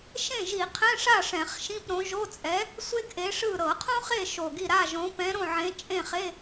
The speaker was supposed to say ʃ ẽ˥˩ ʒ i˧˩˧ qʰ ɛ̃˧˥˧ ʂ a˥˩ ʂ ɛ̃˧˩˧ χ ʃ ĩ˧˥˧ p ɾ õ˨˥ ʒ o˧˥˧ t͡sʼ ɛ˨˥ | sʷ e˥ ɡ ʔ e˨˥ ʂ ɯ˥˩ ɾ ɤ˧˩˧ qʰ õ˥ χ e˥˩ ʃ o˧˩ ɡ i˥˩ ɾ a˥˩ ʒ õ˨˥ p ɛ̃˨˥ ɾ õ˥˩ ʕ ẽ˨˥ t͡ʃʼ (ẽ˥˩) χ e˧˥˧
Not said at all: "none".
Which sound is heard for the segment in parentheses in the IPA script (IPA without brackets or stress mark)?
ẽ˥˩